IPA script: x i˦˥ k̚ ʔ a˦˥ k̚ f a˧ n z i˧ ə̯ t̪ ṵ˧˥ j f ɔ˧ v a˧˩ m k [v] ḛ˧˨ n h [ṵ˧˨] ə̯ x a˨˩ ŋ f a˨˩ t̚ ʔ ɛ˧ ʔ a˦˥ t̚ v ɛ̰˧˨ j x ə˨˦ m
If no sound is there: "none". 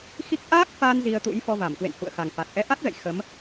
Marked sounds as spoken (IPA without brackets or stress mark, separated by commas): w, ṵ˧˨